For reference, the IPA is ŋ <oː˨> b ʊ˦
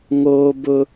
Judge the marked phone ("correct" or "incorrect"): incorrect